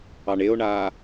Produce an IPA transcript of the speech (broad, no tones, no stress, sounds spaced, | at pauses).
ɑ ɳ e o̯ ɳ aː